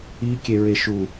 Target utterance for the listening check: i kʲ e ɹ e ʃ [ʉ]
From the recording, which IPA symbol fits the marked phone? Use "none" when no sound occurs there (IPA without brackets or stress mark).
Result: u